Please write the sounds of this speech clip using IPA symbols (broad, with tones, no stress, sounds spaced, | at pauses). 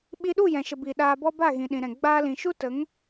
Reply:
ɓ i˧ ɗ u˦˨ j ɛ̃˨ ʃ ə˨ b i˨ ɗ aː˧ b ɔ˦ b a˦˨ ɣ ĩ˨ ɗ ĩ˨ ɾ ɛ̃˨ ɡ͡b aː˧ l ĩ˨ ʃ u˦ t ə˨˦ ŋ